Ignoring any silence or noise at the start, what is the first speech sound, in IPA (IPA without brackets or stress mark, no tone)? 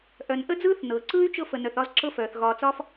ʔ